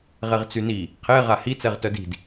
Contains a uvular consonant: yes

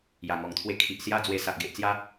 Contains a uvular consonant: no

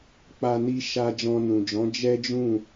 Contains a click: no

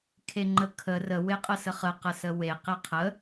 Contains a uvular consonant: yes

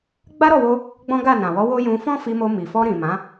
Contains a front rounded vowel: no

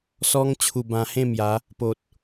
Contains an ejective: no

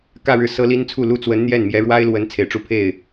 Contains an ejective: no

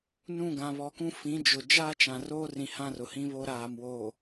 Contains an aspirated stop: no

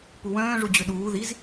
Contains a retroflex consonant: yes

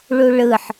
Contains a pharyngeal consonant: yes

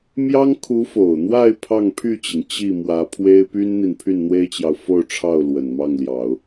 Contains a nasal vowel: no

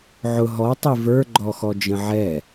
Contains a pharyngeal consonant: yes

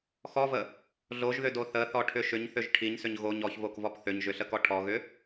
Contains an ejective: no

